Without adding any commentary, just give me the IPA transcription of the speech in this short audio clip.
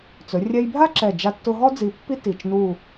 t͡sɵ˩˧rʲɛ˧jbʱa˥ǁɛ˧˩ d͡ʒa˧tːʊ˧ɦɔ˥ d͡zi˧pːi˥ ti˧˩t͡ʃnu˥˧

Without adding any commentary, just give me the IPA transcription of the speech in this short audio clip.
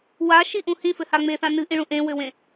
waʃiʔũ hĩfɘha ŋ͡meθã nɨʔĩɭũ ʔẽwɘwẽ

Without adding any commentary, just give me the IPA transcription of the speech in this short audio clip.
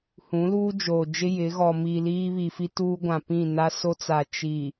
hũ˨˦luː˦d͡ʒoː˨d͡ʒɪ˦ jɪ˨˦ ɣɔ˨miː˨ liː˦βi˨fi˦ tuː˦ɡʷã˨pĩ˦˨na˦ so˦t͡sa˨ t͡ʃi˨

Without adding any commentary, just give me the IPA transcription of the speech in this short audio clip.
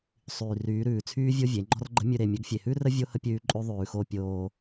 sˤyː˨ryː˨˦ɾʉː˨t͡sʰyː˦ vʲo˦vʲe˨˦ŋ͡ǃɔ̤˦rɡ͡ǃə̤˦ mʲʉ˨ɾe˨ mʲə˨˦ɡfʲe˨hʉ˦rə˦ vʲo˦hə˦ pʲʉː˦ ǃʼʉ˦ðˤʉː˨xo˦ pʲoː˦

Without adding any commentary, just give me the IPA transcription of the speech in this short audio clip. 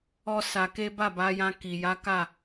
ɔ˦sa˧ke˦ ba˦˨ba˨˦jã˧ ki˨ ja˨˦ka˦˨

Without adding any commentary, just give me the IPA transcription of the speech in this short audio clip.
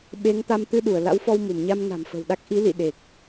ɓe˨˦ŋ t̪a˧mt̪ɨ˧ɗu˧˩ə̯ la̰˧˥wfɔ˧wmu˧˩mɲa˧m na̤˨˩mfə̤˨˩wɗa˦˥k̚ ʔi˨˦lḭ˧˨ ɗe˨˩k̚

